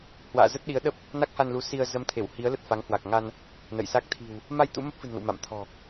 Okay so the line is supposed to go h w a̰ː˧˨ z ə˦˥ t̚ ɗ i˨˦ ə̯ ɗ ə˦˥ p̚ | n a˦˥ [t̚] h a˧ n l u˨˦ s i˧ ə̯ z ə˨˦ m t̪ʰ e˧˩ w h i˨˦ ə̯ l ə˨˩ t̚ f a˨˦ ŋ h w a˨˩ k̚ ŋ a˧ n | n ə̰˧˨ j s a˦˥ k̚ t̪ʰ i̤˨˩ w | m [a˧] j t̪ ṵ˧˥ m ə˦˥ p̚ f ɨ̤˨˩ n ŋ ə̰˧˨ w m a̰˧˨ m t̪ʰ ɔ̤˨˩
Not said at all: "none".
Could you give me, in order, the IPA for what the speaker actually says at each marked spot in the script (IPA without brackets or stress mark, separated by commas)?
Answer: k̚, a˧